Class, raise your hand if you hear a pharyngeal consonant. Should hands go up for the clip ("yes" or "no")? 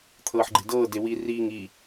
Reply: yes